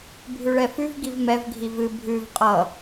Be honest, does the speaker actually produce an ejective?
yes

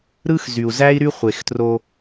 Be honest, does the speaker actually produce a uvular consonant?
yes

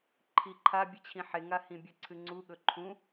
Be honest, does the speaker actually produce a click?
yes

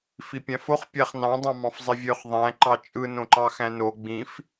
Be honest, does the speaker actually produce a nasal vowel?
yes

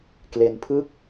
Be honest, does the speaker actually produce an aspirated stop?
yes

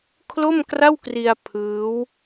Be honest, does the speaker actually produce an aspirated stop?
yes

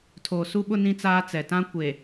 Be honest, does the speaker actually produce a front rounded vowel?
no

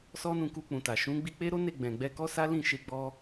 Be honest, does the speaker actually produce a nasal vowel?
yes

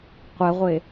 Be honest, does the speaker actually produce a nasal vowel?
no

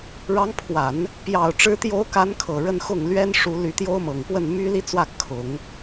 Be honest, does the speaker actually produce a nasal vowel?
no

